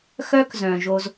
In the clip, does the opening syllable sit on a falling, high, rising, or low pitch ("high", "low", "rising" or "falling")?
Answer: high